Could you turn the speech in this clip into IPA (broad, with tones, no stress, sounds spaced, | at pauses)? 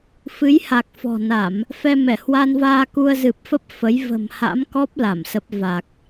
f ɨ˨˦ j h a˨˩ k̚ f ɔ̤˨˩ n a˧˩˨ m | f ɛ˧ m ɛ˧˩ h w a˧ n v aː˧ k u˧ ə̯ z ɨ˨˩ p̚ f ə˦˥ p̚ f ə˨˦ j v ə̤˨˩ m h a̰˧˥ m k ɔ˦˥ p̚ l a˧˩ m s ə˦˥ p̚ v a˨˩ k̚